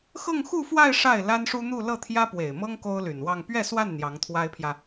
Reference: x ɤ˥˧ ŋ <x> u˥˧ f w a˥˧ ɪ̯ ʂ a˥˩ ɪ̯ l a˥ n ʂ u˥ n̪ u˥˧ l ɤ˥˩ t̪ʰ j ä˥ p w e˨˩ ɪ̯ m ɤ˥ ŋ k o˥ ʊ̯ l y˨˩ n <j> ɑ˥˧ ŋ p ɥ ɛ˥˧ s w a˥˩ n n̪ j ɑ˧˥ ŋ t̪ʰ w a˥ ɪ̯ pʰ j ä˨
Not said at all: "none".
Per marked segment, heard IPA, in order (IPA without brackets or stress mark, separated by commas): x, w